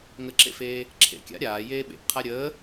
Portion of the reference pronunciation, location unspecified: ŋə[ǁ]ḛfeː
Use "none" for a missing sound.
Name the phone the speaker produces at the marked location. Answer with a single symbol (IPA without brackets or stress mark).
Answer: ǁ